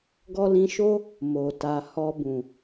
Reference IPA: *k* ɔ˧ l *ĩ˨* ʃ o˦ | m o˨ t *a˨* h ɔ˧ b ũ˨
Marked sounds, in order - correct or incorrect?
incorrect, incorrect, correct

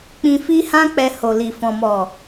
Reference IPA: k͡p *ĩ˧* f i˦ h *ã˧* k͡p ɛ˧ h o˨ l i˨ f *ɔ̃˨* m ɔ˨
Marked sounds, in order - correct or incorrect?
correct, incorrect, correct

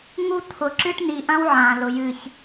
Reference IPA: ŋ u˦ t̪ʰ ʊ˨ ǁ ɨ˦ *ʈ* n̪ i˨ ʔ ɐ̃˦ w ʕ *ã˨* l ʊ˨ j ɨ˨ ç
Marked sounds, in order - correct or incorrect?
correct, correct

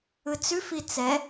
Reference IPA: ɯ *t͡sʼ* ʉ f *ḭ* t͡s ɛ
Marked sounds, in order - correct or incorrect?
incorrect, incorrect

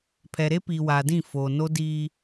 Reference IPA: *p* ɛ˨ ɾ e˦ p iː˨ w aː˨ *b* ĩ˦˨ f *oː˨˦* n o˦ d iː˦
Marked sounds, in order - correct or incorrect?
incorrect, incorrect, incorrect

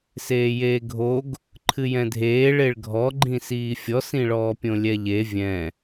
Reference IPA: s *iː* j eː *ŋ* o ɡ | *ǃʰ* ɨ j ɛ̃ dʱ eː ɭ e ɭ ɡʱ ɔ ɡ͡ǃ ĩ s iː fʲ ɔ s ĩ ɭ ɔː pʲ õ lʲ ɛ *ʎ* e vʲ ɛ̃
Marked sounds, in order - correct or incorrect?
incorrect, incorrect, correct, correct

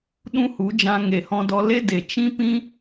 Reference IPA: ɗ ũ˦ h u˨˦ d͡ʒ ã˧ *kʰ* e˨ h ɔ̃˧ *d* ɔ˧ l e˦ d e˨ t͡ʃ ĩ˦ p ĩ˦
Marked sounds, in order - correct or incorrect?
incorrect, correct

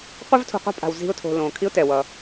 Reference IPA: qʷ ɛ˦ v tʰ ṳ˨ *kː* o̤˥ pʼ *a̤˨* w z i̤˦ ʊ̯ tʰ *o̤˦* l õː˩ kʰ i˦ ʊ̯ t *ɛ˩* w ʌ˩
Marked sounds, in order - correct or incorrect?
incorrect, correct, incorrect, correct

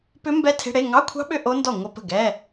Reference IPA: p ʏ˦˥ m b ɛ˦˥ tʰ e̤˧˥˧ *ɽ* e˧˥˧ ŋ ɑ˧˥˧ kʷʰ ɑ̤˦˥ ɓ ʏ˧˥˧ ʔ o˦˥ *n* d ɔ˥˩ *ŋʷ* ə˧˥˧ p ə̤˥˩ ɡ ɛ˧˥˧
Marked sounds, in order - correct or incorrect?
correct, correct, correct

